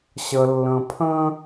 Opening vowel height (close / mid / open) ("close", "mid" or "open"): mid